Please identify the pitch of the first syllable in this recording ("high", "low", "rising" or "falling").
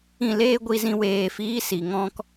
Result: falling